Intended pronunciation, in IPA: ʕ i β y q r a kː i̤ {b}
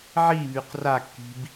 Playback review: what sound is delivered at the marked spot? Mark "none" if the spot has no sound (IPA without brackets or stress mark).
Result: b